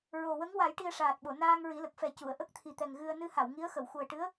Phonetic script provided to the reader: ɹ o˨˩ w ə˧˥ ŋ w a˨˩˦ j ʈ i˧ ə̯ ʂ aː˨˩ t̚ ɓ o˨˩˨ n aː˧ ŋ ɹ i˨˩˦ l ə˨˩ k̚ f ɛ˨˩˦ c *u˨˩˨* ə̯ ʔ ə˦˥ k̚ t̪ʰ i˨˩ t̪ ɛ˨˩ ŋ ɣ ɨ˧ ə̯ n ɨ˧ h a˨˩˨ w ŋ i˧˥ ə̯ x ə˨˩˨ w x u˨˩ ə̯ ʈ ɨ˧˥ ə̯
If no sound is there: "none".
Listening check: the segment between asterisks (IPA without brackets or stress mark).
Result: u˨˩˨